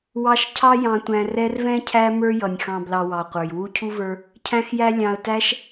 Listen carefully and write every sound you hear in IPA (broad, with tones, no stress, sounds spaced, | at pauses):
w ɑ˦ ʃ cʰ ɑ˦ j ɑ̃˨ tʷ æ̃˨ r ɛ˦ r v ɛ̃˥ cʰ æ˦ m ə˞˦ j ʌ˩ nʲ x ɑ̃˨ b l ɑ˨ w ɑ˩ qʷ ə˞˩ j w u˦ cʰ u˥ v ə˞˦ | cʰ æ̃˦ x j æ˦ lʲ ɑ̃˨ ə̯ t æ˦ ʃ